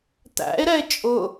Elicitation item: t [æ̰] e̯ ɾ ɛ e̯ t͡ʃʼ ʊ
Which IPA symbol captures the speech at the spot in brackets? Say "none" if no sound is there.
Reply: æ̰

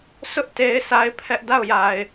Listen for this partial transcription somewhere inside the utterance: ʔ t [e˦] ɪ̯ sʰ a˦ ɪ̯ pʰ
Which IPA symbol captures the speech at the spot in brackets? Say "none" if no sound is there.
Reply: e˦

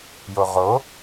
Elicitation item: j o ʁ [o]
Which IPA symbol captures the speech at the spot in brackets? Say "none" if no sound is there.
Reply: o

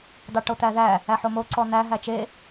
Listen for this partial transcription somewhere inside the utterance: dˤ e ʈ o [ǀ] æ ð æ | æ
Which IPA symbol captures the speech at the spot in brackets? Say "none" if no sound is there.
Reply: t̪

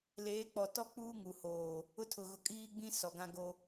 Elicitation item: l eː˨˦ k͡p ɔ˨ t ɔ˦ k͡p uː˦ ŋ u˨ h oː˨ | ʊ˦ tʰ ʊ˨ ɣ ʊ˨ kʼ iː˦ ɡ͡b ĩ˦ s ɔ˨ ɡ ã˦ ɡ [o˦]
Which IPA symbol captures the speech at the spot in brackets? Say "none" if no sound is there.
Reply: o˦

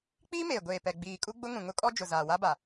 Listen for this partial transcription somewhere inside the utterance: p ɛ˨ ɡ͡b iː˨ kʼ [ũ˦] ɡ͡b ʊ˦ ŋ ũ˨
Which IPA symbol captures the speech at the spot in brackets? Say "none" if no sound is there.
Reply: u˦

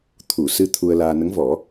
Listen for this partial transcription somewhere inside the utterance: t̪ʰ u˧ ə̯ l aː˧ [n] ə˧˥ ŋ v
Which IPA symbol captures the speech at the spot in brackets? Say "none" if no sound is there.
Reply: n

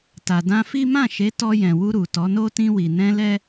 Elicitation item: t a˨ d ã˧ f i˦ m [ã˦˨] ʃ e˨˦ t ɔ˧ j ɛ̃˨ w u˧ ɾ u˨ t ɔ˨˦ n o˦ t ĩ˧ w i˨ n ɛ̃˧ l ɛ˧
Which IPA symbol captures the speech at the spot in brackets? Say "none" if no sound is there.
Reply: ã˦˨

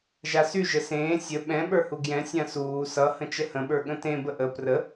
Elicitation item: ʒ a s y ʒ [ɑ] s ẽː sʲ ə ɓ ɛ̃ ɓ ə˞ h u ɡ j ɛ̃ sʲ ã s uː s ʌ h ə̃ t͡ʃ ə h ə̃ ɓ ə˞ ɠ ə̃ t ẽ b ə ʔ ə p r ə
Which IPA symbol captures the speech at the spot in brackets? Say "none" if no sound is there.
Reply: ə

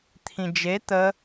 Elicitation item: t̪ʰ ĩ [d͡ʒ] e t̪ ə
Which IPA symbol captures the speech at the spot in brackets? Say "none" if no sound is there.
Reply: d͡ʒ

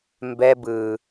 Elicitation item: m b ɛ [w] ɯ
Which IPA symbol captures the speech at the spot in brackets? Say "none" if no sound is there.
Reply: b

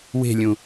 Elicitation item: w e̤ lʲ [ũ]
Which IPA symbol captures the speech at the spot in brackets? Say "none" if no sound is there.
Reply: ũ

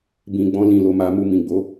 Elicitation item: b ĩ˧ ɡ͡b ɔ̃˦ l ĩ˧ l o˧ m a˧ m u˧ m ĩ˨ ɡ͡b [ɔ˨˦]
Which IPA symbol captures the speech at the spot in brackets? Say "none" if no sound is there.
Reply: o˨˦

